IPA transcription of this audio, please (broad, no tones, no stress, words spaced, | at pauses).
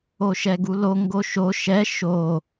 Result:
oʃɛɡulo ŋɡoʃo ʃɛ ʃo